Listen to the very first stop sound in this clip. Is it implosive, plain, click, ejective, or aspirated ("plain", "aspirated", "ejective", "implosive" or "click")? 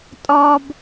ejective